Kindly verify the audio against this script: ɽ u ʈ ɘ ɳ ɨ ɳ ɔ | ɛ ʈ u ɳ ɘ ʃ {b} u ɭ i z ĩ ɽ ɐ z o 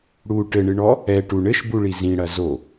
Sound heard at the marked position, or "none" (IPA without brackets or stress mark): b